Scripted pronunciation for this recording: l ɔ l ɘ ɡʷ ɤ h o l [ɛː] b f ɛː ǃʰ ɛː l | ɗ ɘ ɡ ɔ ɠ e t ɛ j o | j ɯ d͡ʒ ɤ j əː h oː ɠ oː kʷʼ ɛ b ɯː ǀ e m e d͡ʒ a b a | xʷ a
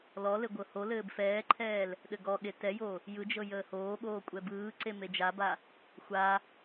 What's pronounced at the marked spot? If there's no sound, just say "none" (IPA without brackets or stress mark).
ɘː